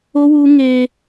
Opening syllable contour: high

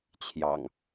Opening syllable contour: low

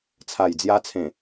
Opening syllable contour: low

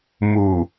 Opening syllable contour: low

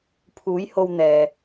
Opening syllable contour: rising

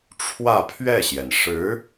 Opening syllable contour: falling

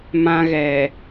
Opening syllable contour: high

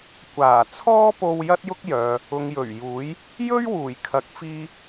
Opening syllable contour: low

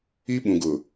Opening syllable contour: high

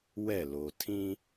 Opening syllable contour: falling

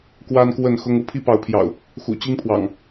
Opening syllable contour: high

